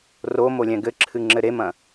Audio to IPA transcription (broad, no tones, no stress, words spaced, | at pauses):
romolʲɛ̃ ɡɘǁʰɨŋ͡ǁɘ ɾemɐ̃